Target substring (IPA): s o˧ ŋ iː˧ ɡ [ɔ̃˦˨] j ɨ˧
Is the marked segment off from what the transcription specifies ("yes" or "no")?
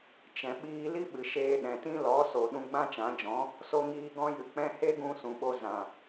yes